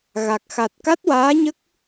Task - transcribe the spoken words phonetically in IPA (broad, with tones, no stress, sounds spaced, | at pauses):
ɣ a˨˩ k̚ x a˨˩ t̚ k a˦˥ t̚ w aː˧˥ ɲ ə˦˥ k̚